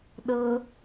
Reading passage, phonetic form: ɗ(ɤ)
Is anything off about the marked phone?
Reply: no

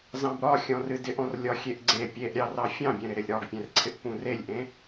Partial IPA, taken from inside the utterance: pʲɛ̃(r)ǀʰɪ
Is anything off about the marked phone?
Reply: no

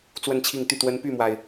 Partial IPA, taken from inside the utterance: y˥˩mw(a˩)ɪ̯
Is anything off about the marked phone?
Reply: no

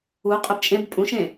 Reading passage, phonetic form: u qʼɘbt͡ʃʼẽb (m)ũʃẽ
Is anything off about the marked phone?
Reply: yes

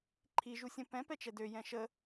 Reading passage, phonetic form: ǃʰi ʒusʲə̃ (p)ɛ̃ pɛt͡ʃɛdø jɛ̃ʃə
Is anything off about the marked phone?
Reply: no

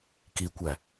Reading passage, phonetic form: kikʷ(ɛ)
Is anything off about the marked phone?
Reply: yes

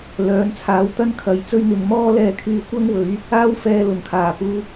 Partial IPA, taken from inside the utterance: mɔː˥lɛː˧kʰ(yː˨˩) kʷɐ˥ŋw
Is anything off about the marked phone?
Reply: yes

